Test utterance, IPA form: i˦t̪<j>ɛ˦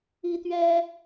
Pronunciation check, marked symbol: incorrect: ɥ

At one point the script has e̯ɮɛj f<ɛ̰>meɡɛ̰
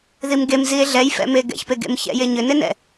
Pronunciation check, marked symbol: correct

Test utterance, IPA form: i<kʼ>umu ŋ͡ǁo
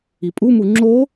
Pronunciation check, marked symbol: incorrect: pʼ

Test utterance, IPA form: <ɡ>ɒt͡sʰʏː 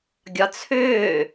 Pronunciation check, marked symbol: incorrect: ɡʲ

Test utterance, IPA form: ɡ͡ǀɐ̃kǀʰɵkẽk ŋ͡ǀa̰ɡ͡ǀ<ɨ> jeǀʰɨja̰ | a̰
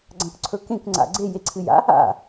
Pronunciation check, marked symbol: incorrect: e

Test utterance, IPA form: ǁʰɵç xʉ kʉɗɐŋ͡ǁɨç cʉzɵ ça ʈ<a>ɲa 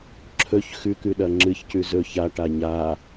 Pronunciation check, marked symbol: correct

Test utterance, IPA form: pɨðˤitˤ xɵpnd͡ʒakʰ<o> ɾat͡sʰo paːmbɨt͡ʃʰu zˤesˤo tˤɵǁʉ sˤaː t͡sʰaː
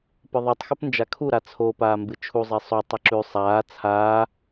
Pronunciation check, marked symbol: incorrect: u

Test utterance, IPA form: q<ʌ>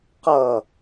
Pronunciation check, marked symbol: correct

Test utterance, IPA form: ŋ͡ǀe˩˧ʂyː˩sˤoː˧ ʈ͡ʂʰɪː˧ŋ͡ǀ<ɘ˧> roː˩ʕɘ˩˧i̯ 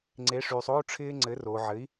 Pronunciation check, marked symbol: incorrect: ɘ˩˧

